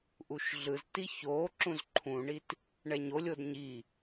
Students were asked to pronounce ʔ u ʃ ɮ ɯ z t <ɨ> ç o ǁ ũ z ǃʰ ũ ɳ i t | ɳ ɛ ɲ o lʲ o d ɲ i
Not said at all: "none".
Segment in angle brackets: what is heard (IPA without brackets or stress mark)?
i